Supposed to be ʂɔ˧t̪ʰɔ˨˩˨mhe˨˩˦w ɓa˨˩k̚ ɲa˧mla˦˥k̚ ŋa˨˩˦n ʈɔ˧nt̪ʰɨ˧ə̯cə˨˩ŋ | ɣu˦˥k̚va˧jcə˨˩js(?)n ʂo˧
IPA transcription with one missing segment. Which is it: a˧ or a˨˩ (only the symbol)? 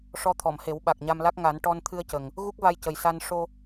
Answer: a˧